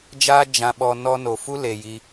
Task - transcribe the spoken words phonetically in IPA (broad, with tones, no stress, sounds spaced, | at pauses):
d͡ʒ aː˦ d͡ʒ ã˧ ɓ ɔ˧ n ɔ˧ n o˨ f u˦ l e˨ j i˧